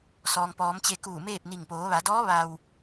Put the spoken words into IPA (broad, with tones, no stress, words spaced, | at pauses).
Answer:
sɔː˩ŋpɔː˩˧m t͡ɕe˧kuː˧˩meː˥˨p̚ni˧˩ŋ poː˩˧ʋa˩˧dɔː˧˥ ʋa˩w